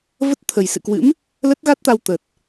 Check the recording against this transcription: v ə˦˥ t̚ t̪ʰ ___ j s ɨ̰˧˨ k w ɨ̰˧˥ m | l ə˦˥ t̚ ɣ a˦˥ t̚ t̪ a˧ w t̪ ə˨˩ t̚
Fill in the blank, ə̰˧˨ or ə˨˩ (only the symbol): ə˨˩